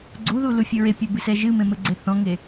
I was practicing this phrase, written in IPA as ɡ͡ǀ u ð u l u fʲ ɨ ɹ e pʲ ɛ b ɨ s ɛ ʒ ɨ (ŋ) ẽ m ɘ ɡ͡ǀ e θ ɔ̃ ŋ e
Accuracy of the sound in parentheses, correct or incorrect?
incorrect